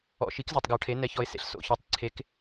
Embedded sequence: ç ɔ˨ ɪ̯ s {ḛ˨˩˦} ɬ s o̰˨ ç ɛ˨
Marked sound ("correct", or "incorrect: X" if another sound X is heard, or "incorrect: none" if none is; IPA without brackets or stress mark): correct